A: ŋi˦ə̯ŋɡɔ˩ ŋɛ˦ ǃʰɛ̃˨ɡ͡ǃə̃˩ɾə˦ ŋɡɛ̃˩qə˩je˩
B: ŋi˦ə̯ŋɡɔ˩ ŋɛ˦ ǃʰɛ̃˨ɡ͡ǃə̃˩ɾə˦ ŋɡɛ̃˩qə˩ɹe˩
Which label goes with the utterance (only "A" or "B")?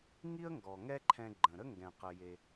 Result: A